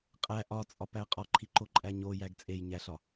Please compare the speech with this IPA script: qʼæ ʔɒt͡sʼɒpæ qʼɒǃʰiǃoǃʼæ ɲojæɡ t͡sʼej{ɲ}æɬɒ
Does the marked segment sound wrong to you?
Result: no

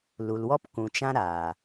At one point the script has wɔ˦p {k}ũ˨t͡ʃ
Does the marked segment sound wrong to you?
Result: no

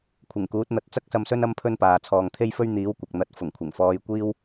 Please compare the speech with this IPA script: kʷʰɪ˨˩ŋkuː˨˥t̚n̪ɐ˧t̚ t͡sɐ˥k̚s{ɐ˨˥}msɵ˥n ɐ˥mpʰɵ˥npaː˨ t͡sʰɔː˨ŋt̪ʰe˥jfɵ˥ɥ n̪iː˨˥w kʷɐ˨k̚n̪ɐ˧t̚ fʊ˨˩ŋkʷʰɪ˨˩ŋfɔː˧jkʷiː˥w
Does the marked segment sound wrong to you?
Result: yes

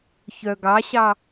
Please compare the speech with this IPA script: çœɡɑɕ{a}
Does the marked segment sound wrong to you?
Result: yes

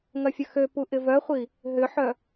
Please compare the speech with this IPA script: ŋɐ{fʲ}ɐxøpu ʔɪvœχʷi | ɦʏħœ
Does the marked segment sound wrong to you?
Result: no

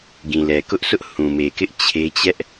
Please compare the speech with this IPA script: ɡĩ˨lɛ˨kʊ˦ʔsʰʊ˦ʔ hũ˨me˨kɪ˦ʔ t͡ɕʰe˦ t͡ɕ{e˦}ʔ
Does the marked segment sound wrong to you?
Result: yes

